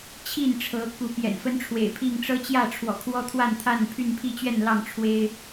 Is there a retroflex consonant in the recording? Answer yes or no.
yes